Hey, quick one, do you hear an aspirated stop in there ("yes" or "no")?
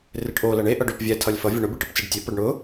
yes